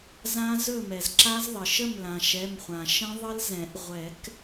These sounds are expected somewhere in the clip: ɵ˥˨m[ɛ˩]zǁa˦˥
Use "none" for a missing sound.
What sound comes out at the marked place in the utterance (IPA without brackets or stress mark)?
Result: ɛ˩